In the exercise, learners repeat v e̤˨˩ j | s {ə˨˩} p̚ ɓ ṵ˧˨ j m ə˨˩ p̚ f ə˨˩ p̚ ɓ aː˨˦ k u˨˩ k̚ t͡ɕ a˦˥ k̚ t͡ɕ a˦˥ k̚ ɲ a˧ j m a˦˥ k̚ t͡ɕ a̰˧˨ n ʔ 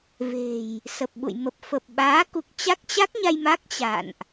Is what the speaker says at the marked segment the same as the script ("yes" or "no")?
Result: yes